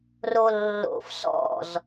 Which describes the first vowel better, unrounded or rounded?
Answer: rounded